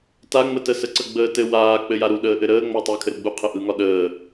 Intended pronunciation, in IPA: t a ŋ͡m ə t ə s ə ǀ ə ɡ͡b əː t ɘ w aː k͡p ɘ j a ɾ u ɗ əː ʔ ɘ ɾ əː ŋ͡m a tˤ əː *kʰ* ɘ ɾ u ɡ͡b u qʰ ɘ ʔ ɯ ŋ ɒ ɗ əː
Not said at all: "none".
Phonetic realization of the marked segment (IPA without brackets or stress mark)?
kʰ